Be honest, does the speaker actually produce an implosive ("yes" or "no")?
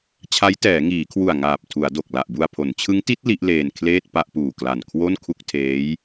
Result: no